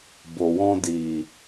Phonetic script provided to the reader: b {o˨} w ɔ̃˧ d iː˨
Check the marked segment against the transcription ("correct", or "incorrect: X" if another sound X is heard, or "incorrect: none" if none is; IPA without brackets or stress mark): correct